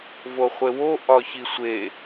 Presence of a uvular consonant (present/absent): present